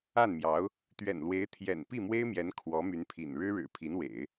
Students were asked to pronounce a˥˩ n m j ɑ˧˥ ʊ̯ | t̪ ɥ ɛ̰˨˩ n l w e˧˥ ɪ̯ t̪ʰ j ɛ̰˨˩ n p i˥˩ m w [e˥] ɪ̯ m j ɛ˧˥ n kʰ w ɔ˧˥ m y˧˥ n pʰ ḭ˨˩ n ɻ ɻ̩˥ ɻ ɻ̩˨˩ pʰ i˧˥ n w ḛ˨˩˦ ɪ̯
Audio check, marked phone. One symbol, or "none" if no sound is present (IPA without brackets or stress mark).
e˥